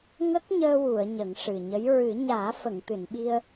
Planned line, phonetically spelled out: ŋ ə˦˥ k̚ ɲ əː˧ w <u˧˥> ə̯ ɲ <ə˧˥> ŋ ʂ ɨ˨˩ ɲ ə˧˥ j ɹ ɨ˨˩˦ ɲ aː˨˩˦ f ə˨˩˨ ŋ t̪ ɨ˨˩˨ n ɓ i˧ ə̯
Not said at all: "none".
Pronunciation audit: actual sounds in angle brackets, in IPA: u˨˩˨, ə˨˩˦

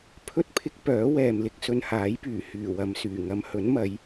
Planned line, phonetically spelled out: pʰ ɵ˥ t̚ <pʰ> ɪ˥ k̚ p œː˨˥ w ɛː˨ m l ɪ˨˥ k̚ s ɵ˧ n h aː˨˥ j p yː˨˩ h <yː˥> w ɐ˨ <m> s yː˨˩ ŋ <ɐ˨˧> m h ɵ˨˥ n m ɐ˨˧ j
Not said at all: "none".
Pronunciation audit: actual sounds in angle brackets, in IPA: pʰ, yː˨˩, m, ɐ˨˧

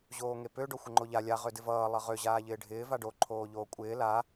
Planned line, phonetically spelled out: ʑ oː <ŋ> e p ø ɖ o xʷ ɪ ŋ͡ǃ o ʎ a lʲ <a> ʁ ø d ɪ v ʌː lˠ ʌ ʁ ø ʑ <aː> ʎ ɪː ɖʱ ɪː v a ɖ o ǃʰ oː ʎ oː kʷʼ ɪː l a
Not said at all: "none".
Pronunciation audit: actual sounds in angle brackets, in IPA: ŋ, a, aː

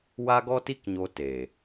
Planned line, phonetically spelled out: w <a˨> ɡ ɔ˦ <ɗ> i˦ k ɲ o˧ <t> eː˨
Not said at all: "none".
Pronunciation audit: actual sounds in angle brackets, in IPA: a˦, t, t

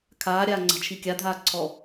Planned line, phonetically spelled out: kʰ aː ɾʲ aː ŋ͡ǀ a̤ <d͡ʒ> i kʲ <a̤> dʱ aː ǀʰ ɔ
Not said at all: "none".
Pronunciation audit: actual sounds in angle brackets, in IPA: t͡ʃʰ, a

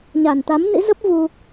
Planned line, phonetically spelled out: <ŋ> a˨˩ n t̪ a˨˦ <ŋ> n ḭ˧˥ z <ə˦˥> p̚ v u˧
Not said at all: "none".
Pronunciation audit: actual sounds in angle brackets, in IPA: ɲ, m, ə˦˥

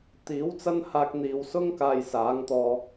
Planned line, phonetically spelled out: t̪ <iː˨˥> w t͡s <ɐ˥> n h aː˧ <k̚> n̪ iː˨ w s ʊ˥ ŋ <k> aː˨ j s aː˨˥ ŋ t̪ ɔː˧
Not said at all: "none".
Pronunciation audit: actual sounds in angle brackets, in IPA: iː˨˥, ɐ˥, k̚, k

